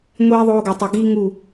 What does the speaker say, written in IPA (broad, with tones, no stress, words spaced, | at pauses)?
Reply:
ŋʷiː˧ðˤoː˧ɡo˨tˤu˨ ɡiː˦ŋu˦˨